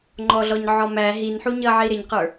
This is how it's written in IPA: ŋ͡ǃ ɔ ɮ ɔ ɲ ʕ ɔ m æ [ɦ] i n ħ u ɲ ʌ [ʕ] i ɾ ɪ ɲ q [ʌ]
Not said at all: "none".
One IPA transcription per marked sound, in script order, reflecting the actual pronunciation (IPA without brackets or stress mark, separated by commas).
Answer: ɦ, ʕ, ə˞